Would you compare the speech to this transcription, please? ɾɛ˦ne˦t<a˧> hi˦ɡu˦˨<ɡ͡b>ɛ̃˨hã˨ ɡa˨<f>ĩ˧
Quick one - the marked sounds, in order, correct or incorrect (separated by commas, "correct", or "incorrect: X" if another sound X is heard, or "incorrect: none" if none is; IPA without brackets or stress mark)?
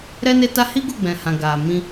incorrect: a˦, correct, incorrect: m